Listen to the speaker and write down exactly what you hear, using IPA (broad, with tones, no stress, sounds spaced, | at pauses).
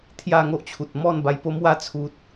t̪ʰ j a˥˧ ŋ o˦ ʔ t͡ɕʰ u˨ t̚ m ɔ˥˧ n b a˧ j p o˦ m w a˦ t͡sʰ u˨ t̚